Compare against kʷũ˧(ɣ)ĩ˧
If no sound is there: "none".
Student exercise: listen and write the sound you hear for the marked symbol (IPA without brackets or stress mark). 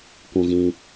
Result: ɣ